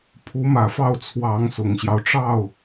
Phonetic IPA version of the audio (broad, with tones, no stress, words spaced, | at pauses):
pʰu˧˥mä˨˩fɑ˥˩ʊ̯ t͡sʰwɑ˧˥ŋsʊ˨˩ŋɕjɑ˦ʊ̯ʈ͡ʂɑ˥˩ʊ̯